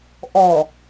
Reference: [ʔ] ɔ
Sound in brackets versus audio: correct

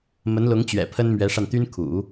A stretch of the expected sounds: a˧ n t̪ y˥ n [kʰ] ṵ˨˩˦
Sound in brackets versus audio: correct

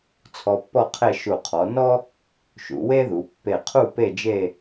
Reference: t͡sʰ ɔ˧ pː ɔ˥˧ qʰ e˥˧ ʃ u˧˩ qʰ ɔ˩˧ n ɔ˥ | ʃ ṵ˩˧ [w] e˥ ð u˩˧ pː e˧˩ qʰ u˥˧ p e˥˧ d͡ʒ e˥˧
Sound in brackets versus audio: correct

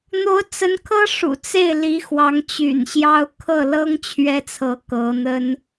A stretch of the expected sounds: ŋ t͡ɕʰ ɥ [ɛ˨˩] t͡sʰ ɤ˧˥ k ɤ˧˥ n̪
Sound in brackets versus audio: incorrect: ɛ˥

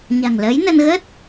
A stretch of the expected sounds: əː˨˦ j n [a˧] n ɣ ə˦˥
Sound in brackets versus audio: incorrect: ə˧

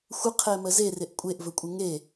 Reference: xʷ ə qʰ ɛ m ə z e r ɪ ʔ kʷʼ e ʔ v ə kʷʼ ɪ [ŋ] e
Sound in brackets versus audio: correct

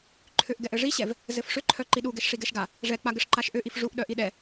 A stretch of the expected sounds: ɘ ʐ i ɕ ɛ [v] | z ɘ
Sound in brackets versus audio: correct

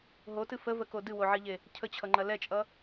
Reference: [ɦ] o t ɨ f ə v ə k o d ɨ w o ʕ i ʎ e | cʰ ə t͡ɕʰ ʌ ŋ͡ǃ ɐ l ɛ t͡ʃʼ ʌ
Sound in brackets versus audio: correct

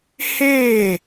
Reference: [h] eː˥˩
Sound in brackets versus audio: correct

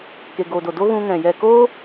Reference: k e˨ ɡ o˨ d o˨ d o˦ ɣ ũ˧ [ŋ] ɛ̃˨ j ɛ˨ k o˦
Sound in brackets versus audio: correct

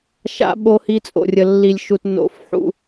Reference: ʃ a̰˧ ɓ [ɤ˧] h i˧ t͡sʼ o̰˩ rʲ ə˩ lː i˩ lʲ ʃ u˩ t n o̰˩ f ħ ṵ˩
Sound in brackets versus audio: incorrect: o˧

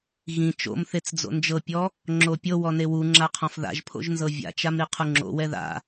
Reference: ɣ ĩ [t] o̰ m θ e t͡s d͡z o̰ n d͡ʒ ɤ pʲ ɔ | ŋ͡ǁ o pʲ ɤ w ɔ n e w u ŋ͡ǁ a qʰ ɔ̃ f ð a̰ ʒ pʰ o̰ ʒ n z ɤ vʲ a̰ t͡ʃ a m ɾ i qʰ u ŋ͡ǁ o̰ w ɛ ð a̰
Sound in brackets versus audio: incorrect: t͡ʃ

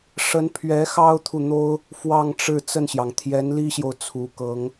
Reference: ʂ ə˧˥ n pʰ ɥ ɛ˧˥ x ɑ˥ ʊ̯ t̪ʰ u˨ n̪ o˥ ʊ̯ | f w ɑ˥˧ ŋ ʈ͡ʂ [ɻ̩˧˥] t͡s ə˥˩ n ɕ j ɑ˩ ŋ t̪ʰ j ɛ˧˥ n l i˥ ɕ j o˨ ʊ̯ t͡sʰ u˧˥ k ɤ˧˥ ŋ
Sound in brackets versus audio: incorrect: ɻ̩˥˧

